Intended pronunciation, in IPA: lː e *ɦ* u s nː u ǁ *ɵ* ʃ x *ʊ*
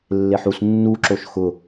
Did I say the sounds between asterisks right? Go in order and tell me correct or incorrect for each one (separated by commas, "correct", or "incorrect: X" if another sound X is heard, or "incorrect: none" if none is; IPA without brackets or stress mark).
incorrect: ħ, incorrect: o, correct